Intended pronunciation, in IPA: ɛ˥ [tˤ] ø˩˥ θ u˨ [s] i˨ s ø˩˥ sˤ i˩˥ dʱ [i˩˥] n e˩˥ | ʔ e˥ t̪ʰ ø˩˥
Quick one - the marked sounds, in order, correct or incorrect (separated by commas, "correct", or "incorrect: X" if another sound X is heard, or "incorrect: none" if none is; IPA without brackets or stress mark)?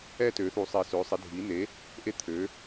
incorrect: t, incorrect: sˤ, correct